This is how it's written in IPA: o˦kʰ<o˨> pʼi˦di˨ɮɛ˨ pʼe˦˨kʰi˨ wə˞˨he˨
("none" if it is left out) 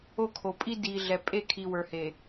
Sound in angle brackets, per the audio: o˨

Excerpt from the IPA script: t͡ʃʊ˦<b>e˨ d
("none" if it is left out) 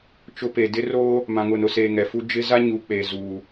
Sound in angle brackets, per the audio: p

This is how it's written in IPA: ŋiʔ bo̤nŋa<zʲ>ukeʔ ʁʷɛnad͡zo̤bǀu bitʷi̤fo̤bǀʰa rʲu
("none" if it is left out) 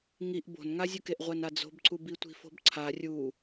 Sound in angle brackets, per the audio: zʲ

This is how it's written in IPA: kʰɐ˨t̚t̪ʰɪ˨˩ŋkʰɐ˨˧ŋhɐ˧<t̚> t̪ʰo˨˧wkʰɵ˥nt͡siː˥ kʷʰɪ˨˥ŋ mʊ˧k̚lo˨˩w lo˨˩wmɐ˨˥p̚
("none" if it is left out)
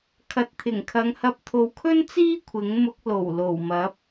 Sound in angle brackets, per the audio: p̚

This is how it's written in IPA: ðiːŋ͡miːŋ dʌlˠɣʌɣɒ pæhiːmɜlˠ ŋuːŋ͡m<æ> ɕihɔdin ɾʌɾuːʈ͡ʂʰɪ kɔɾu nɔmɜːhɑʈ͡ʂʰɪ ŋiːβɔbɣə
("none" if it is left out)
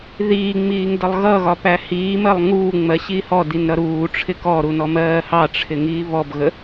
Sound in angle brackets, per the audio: ɜ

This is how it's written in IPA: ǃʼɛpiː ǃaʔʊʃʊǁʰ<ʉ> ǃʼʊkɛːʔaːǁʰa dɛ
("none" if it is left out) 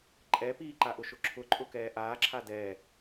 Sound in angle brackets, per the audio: ʊ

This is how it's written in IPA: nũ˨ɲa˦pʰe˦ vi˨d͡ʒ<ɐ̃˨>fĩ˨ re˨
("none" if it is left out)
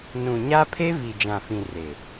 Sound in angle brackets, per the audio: ã˨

